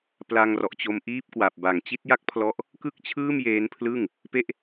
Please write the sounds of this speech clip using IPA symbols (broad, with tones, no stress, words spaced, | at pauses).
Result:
pla˧ŋrɔ˨˩ʔt͡ɕo˧m ʔiː˦˥p̚kwa˨˩p̚ ba˨˩ŋ t͡ɕi˦˥t̚ja˥˩k̚pʰlɔ˦˥ʔ | kɯ˥˩k̚t͡ɕʰɯː˥˩mjeː˦˥npʰlɯ˥˩ŋ | pe˥˩ʔ